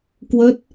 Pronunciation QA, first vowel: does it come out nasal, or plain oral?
oral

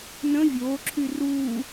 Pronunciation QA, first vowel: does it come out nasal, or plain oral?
nasal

